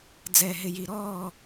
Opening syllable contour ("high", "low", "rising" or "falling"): low